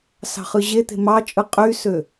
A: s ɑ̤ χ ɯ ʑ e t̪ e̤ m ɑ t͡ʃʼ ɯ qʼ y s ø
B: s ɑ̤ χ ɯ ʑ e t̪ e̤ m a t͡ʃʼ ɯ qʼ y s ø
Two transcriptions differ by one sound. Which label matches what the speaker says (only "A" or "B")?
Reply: A